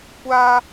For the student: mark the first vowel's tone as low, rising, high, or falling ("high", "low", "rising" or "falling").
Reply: high